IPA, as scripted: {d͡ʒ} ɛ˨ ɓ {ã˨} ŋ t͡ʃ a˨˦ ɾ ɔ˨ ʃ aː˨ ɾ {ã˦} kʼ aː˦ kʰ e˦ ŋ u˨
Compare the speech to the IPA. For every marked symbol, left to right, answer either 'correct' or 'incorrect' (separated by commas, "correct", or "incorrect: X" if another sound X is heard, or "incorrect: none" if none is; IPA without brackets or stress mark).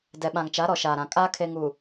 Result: incorrect: d, correct, incorrect: ã˨